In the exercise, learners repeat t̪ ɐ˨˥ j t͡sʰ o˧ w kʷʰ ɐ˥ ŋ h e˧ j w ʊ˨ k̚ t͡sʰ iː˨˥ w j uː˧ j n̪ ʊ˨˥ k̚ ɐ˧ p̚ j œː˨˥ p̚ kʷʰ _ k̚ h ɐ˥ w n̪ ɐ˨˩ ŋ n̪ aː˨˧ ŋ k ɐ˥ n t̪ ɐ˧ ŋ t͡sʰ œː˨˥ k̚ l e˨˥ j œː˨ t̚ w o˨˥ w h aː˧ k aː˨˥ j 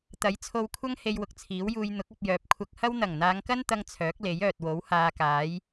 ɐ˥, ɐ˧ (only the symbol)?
ɐ˧